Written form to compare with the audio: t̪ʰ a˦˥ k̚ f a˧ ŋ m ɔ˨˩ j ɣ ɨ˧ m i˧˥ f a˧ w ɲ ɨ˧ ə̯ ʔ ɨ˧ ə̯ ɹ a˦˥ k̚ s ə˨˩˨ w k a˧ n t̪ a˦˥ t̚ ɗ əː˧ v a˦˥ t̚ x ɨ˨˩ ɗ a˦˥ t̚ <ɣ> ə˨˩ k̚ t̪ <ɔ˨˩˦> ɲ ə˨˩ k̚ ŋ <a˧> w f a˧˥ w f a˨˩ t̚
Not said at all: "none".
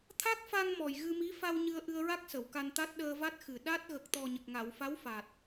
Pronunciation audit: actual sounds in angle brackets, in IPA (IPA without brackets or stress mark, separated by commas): ɣ, ɔ˨˩, a˨˩˨